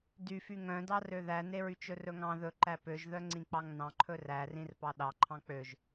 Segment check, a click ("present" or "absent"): present